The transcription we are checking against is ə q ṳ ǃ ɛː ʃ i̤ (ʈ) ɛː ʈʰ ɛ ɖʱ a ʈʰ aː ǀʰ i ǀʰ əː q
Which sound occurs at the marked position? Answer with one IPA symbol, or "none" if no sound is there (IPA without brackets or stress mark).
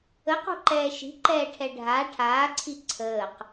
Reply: ǃ